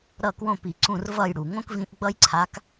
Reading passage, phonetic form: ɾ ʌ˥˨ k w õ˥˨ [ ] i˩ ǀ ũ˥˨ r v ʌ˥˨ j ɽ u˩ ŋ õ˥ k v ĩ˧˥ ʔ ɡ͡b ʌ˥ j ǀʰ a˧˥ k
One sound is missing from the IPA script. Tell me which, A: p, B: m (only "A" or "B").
A